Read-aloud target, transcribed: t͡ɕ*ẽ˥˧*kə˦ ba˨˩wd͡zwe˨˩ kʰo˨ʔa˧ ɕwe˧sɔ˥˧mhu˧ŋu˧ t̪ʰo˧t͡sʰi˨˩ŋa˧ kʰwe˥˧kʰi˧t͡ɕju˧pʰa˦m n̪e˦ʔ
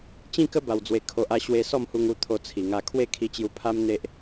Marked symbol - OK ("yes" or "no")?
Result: no